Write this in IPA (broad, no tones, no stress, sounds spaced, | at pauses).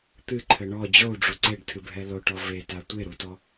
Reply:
t̪ ɨ ǃʰ ɘ ɳ ɔ d͡ʑ o u̯ ɖ͡ʐ u ǀ e ɖ tʰ ɨ bʱ ɛ l o ʈ ɔ v e t a tʷ e ɾ u t ɔ